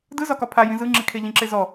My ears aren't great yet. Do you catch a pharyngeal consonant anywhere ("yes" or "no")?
no